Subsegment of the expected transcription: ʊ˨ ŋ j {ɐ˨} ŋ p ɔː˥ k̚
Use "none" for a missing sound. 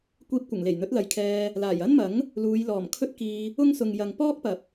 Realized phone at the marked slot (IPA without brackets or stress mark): ɐ˨